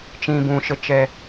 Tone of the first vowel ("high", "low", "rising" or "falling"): low